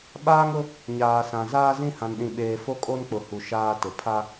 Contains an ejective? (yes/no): yes